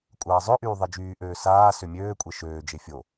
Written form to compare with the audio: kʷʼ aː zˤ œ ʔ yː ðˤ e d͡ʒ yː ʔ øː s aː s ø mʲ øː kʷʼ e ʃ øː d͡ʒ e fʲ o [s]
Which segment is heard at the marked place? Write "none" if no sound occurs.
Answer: none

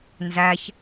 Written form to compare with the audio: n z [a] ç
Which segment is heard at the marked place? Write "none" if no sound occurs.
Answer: æ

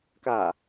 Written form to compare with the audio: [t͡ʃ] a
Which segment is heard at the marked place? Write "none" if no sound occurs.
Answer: k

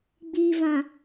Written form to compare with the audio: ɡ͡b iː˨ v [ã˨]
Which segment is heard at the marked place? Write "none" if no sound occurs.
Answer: ã˨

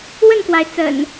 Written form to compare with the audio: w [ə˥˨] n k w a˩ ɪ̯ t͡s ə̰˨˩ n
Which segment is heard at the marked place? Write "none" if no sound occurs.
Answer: ə˥˨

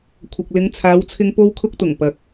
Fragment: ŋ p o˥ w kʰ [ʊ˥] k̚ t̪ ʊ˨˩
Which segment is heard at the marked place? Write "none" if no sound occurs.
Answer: ʊ˥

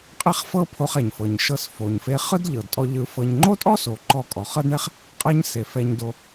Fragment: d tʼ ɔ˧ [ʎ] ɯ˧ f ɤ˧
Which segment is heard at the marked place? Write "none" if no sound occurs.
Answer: ʎ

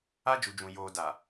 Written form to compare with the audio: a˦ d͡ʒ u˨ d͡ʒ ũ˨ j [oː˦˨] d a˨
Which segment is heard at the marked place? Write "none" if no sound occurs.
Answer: oː˨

